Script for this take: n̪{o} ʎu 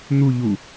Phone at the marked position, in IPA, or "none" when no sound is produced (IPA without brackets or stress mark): u